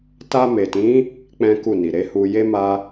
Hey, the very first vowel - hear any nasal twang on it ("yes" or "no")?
no